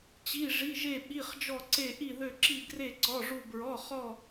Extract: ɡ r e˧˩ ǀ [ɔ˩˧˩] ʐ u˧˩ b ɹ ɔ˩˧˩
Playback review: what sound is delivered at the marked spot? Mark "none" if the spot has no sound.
ɔ˩˧˩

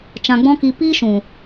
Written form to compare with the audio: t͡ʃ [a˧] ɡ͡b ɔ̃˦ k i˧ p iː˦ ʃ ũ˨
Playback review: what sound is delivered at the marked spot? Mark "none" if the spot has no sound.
ã˧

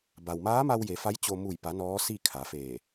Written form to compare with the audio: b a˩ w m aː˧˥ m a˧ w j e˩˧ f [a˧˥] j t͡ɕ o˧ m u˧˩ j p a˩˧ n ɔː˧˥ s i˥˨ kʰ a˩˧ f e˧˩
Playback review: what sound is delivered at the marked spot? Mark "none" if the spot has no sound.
a˧˥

